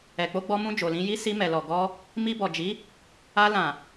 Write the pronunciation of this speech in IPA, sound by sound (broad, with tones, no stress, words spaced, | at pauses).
ɛ˨k͡po˧ɡ͡bɔ˧mũ˧ d͡ʒo˨lĩ˧ji˦ si˧mɛ˨lɔ˨ɡɔ˧ | mi˧bɔ˨d͡ʒi˨˦ | a˧lã˨